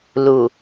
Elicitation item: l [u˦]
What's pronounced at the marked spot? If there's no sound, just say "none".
u˨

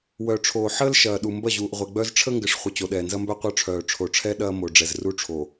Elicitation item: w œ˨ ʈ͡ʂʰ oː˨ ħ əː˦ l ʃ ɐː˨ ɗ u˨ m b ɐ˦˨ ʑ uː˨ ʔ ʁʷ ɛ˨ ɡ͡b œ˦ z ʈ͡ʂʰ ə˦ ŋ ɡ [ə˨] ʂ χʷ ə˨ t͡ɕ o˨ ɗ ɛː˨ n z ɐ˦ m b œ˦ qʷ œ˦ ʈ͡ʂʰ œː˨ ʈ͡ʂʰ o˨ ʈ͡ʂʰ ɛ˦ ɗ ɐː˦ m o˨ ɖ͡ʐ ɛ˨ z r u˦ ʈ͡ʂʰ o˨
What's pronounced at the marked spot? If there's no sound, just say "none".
ə˨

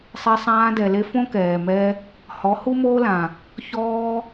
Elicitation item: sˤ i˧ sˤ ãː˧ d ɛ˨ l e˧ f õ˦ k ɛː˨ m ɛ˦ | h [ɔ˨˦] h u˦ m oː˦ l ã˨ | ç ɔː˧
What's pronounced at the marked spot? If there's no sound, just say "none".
ɔ˨˦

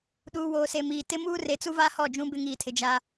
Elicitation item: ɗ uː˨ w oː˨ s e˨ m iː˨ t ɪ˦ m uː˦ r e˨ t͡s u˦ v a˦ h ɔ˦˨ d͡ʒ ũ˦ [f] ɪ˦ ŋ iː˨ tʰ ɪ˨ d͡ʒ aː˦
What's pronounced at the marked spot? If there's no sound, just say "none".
b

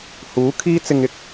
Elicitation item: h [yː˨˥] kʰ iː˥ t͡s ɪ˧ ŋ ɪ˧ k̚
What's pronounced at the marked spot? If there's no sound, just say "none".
uː˨˥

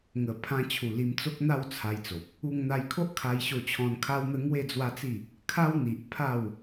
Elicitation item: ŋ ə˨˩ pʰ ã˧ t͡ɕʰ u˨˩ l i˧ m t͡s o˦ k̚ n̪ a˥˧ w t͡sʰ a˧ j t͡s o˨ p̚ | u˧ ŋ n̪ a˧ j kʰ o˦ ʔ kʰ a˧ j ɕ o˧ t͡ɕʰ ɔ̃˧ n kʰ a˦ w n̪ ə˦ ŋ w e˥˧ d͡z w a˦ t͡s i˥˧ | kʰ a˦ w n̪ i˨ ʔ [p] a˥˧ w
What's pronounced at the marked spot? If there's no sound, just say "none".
pʰ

